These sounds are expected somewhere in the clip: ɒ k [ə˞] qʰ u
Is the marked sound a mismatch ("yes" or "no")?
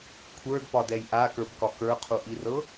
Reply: no